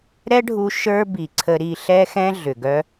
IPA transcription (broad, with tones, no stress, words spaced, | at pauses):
ɾɛ˦ɖʱu˧ ʃə˞˦bi˨ǀʰə˧ ɾi˧ɬɛ˦xɛ̃˦ ɮʏ˨ɡœ˦